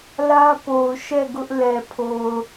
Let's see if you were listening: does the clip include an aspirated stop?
yes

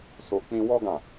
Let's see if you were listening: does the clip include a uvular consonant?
no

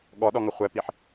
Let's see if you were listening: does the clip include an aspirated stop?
no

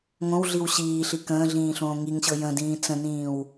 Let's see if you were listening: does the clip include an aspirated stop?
no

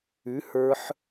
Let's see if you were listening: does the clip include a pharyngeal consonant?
yes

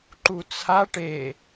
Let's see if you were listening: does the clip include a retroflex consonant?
yes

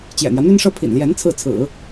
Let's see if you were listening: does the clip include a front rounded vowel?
yes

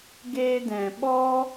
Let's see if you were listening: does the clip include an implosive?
yes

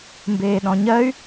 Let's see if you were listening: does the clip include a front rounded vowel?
yes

